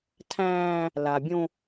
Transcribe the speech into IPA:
tʰ æ̃ː˦ | l a˨ bʲ õ˦

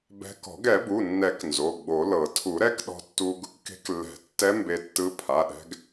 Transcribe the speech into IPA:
b ɛ̤˧ k ɔ̤˨˩˦ ɡ ɛ˨˩˦ b u˩˧˩ nː ɛ˨˩˦ k n z o˩˧˩ ɡ͡b o˨˩˦ l ɤ˨˩˦ tʰ u˨˩˦ ɾ ɛ˧˥ k ɗ ɔ̤˧ tː u˧ ɡ | k e̤˧˥ k lː ɛ̤˨˩˦ tː ɛ˧˥ m b e˧ tː ɯ˧˥ pʰ a˩˧˩ ɗ ɛ̤˧ ɡ

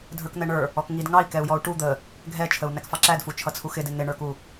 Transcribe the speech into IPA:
dʱ ə˞ k n̪ ɛ ɳ ə˞ | ɔ k ŋ i d ŋ ɑ i̯ k ɛ u̯ j ɔ u̯ ʈ u d̪ ə | ɡʱ ɛ t͡ʃʰ ə u̯ n æ k f ɑ ǁ æ d f u t͡ʃʰ ʌ t͡sʰ u x ɪ d ɪ n̪ ɪ ɳ ə˞ k u

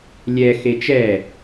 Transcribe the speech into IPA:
lʲ ɛ x e t͡ʃ ɛ

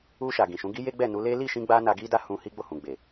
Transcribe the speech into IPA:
u˧ ʃ a˨ ɡ ĩ˨ ʃ ũ˨˦ ɡ i˦ j e˦ ɡ͡b ɛ˦˨ n u˨˦ l e˦ l i˦˨ ʃ ĩ˧ ɡ͡b a˦ n a˧ ɡ i˦ d a˦ h ũ˧ h i˦ ɡ͡b o˦˨ h ũ˨ ɡ͡b e˨

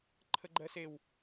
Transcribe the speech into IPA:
ǃʰ ə ɡ͡ǃ ɜ s e w

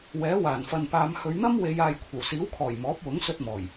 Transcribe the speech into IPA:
w ɛː˨˥ w aː˨˩ n f ɐ˨ n p aː˨˧ m h ɵ˨˧ ɥ n̪ ɐ˥ m w e˨˧ j aː˨ j kʷʰ ɐ˨˩ w s iː˨˥ w kʰ ɔː˨˩ j m ɔː˨˥ p̚ w ʊ˨˥ ŋ s ɵ˧ t̚ m ɔː˨˩ j

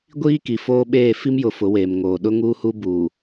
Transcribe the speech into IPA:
ɡʷ iː˦ k i˨ f oː˦ ɓ eː˦˨ f i˦ m j ʊ˨˦ f ʊ˨˦ w eː˨ m ŋ oː˨ ɗ ʊ˦ ŋ uː˦ h u˦ b uː˨

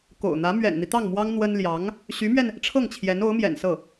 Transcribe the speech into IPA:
k o̰˨˩ ʊ̯ n̪ ä˧˥ m ɥ ɛ̰˨˩ n n̪ i˦ t̪ ɑ˥˩ ŋ m w ɑ˥ ŋ n̪ w ə˥ n l j ɑ˧˥ ŋ | ɕ y˧˥ m ɥ ɛ˧ n | ʈ͡ʂʰ ɤ˥˩ ŋ t͡ɕʰ j ɛ˧˥ n o˧˥ ʊ̯ m j ɛ̰˨˩ n s ɤ˥˩

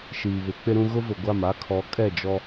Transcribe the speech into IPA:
ʃ iː˨ β ɪ˨˦ k͡p ɪ˦ ɾ ũ˦ ɣ ʊ˦ v ʊ˨ ɡʷ a˦˨ m a˦ kʰ ɔ˨˦ kʼ ɛ˦˨ d͡ʒ ɔ˦

